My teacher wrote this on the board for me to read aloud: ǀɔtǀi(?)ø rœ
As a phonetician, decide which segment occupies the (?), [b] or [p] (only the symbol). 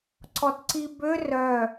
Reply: b